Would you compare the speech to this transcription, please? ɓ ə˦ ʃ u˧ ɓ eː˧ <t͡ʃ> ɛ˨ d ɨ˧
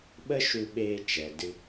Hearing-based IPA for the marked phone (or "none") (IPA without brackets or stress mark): t͡ʃ